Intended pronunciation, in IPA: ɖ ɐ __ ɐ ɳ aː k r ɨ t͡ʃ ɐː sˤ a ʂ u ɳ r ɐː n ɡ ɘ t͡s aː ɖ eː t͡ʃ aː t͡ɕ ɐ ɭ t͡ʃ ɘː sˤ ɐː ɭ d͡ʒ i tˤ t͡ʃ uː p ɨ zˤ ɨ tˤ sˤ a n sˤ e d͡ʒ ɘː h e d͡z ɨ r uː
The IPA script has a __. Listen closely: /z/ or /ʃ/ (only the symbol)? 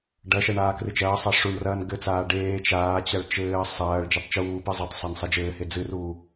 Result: ʃ